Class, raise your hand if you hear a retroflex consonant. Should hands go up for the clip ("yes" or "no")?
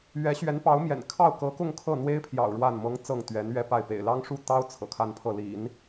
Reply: yes